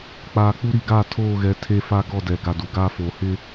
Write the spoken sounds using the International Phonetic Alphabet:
k͡p aː˨ k͡p u˦ ɾ i˨ ɡ a˦˨ tʰ oː˦˨ ɣ ɛ˨˦ tʰ e˦ f a˦ ɡ ɔ˦˨ d ɛ˨ ɡ a˨ d u˨ ɡ aː˦ f oː˨ h ɪ˦

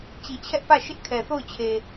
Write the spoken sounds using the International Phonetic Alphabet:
t͡ɕ i˨ t͡ɕʰ ɛ˦ ʔ p ä˦˨ ʃ ɪ˦ ʔ kʰ ɛ˨ θ o˦˨ ʊ̯ t͡ɕʰ e˨

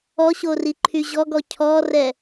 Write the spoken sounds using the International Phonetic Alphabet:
ɔ ɕ o r i ǃʰ y ʑ ɔ ɡ ɔ cʰ ɔ r ɛ

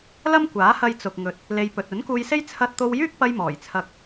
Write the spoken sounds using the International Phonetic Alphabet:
l ɐ˥ m kʷ aː˨˥ h ɐ˧ j t͡s ʊ˨ k̚ ŋ ɵ˨ t̚ | l e˧ j p ɵ˨ t̚ ɵ˨˥ n k uː˧ j s e˥ j t͡sʰ ɐ˧ t̚ t̪ o˧ w j yː˥ k̚ p ɐ˧ j m ɔː˨˩ j t͡sʰ ɐ˧ k̚

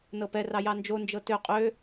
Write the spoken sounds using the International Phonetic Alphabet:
n ɤ p ɛ r ɑ j ɑ n d͡ʒ o n d͡ʒ ɤ t ø qʼ ø

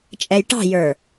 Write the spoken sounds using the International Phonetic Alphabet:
t͡ʃʼ ɛ j ʈ ɑ̤ j ə˞

